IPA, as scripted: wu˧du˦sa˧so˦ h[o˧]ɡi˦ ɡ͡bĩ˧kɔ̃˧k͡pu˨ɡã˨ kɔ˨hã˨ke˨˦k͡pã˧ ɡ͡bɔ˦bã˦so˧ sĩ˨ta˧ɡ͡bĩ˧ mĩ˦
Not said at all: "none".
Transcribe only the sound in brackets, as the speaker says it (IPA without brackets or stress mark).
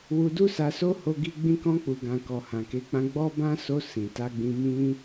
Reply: o˦